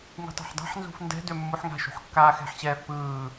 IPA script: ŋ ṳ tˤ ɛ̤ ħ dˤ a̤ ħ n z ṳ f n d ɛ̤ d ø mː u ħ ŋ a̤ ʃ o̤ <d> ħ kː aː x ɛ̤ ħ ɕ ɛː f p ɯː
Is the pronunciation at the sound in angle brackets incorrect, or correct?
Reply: incorrect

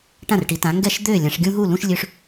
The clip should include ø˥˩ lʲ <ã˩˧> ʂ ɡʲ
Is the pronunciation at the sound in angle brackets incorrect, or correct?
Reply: correct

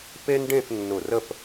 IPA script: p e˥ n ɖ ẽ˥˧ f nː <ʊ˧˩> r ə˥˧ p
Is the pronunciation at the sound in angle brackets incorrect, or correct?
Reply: correct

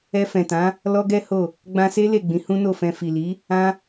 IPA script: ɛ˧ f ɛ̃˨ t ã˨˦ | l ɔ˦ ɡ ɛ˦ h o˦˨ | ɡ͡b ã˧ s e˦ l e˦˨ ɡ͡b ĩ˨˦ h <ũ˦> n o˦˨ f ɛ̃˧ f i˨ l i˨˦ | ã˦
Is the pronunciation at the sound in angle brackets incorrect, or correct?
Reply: correct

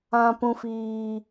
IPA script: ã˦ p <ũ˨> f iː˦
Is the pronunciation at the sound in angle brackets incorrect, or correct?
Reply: incorrect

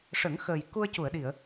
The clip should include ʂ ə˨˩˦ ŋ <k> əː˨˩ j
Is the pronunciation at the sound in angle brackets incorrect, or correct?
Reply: incorrect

